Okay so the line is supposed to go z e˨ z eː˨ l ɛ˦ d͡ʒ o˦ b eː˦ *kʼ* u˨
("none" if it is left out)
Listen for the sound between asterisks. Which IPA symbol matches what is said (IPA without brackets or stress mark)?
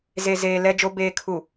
kʰ